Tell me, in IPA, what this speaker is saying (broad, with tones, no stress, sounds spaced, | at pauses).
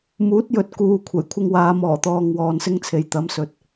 m uː˨˥ t̚ j ɵ˨ t̚ k uː˨ kʷʰ ɐ˨˩ j kʷʰ ɪ˧ ŋ w aː˨˧ m ɔː˨˩ t̪ ɔː˨ ŋ w ɔː˧ n s ɪ˥ ŋ t͡sʰ e˨ j t̪ ɐ˨˧ m s ɵ˨ t̚